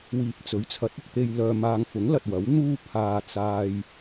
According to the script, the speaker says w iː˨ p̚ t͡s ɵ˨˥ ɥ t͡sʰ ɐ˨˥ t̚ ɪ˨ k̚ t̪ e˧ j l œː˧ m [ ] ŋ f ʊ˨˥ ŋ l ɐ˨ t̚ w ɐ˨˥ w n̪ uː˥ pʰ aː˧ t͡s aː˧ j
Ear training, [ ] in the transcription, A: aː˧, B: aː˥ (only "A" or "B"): A